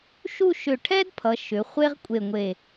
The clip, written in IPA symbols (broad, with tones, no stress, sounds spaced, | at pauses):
ʃ u˥˧ ʃ ʏ˧˩ ʈʰ ɛ˥ d pʰ ʌ˩˧ ʃ ʏ˩˧ χʷ e˥ ʁ kʷʼ e˧˩ ŋʷ e˧˩